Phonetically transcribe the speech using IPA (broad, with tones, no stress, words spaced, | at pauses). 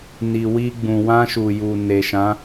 ni˨wi˧ ɡ͡bũ˨wã˧ʃu˨ju˨ ne˨ʃã˨˦